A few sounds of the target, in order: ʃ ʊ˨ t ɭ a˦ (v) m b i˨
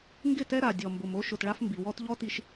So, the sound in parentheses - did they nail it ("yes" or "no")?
no